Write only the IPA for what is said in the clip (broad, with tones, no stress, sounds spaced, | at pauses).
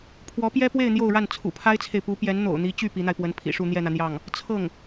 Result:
pʰ w ɔ˧˥ p j ɛ˥ p w e˥˧ ɪ̯ n̪ j o˥˧ ʊ̯ ɻ a˥˩ n t͡sʰ ṵ˨˩ pʰ a˥ ɪ̯ t͡sʰ e˨ ɪ̯ p u˧˥ p j ɛ˧˥ n n̪ o̰˨˩ ʊ̯ n̪ i˧˥ t͡ɕ y˥˩ p i˧˥ n̪ a˧ ɪ̯ p w ə˧˥ n pʰ ḭ˨˩ ʂ u˥˧ n̪ j ɛ˥˩ n̪ ä˩ n̪ j ɑ˥˩ ŋ | t͡sʰ ɤ˥˩ ŋ